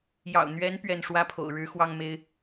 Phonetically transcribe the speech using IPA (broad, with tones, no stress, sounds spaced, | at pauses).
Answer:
j ɑ̰˨˩ ʊ̯ n̪ ɥ ɛ˧˥ n p ɥ ɛ˥˩ n ʂ w ä˥ pʰ o̰˨˩ ʊ̯ ɻ ɻ̩˧˥ x w ɑ˥ ŋ m e˥ ɪ̯